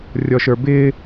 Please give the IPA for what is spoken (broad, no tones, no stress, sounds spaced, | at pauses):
rʲ ɔ ʃ ə˞ b ɪː